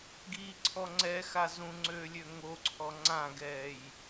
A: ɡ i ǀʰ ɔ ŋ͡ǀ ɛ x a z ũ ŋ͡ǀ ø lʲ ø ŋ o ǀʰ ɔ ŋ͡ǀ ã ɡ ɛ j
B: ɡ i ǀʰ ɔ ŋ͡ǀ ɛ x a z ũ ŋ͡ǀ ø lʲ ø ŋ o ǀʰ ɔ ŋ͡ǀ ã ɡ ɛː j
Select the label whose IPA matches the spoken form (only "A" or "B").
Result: B